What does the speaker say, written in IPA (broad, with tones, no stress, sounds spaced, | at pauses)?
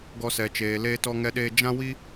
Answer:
ɡ ɔ˦ s ɛ˧ t͡ʃ eː˧ l eː˦ t ɔ˦ ŋ ɛ˦ ɗ eː˦ d͡ʒ ã˦ w i˦